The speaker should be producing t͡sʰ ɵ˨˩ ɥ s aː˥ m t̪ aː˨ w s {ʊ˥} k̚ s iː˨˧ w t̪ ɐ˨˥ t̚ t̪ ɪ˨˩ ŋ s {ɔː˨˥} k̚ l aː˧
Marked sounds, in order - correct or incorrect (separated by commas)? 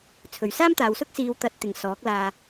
correct, correct